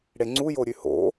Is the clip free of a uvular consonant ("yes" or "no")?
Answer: yes